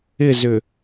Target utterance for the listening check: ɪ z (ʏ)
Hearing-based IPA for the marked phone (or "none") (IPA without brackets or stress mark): ʏ